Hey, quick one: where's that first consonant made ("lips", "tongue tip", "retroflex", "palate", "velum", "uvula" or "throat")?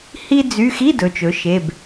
throat